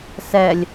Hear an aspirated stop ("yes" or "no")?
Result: no